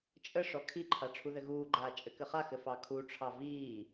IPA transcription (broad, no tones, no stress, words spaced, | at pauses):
t͡ʃʼəʂɔ kʰiǃʰa ʈ͡ʂʰuðɘɣuːɡ͡ǃaː t͡ʃʼɘkɘχaxɘ fɑkʰuʈ͡ʂʰɑ viː